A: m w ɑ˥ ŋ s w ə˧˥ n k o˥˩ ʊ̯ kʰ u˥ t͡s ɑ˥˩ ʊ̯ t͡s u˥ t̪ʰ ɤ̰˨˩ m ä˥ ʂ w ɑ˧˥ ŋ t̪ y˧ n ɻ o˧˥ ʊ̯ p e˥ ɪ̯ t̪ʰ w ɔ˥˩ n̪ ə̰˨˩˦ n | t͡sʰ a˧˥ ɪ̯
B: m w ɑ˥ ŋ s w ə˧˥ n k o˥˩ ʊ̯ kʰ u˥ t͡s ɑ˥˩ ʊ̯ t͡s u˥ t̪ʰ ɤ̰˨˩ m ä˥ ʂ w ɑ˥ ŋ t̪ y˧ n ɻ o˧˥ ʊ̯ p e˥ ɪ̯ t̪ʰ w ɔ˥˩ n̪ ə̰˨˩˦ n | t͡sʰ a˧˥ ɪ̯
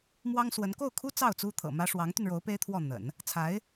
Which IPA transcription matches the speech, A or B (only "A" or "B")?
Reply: A